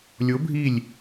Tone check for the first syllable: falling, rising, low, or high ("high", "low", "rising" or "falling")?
rising